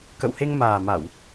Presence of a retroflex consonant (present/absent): absent